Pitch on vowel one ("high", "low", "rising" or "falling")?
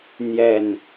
low